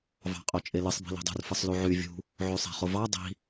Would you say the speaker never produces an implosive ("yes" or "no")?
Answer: yes